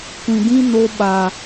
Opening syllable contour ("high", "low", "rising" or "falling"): low